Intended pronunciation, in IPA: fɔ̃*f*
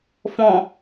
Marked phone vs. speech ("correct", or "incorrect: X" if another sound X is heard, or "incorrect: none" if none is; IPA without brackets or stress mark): incorrect: none